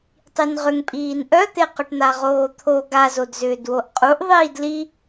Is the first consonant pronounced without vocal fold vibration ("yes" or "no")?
yes